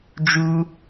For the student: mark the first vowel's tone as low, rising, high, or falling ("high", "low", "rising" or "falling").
high